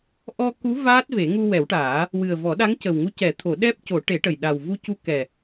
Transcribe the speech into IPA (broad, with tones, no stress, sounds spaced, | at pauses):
ʔ ɔ˧ k u˧˥ v aː˦˥ t̚ v e˨˩˦ ŋ u˧ w ɛ˨˩˦ w ʈ aː˨˩˦ | w ɨ˨˩ ə̯ v ɔ˨˩˦ ɗ a˧˥ ŋ c ə˨˩ w ŋ u˧˥ c ɛ˨˩˦ t̪ʰ o˨˩˦ ɗ ɛ˦˥ p̚ c o˨˩˦ ʈ e˨˩˦ ʈ ə˨˩ j ɗ a˨˩ w v u˧ c u˧ k ɛ˨˩